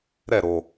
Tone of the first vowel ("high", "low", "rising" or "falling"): falling